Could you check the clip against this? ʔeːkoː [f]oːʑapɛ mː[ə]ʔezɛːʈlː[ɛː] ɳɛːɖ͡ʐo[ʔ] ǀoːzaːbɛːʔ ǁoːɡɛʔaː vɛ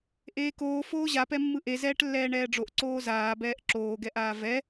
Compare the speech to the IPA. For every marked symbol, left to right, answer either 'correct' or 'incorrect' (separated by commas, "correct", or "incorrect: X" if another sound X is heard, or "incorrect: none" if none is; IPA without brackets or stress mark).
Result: correct, incorrect: ɯ, correct, correct